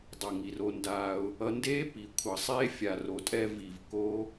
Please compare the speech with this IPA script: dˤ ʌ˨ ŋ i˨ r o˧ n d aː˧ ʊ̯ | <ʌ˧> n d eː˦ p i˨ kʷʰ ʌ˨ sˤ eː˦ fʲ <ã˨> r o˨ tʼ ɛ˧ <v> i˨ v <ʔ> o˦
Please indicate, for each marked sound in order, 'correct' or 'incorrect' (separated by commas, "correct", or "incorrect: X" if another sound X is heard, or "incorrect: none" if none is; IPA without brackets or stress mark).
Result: correct, incorrect: a˨, correct, incorrect: k